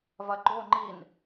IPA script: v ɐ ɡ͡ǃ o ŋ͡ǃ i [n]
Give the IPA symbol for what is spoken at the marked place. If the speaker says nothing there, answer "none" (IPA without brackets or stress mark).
n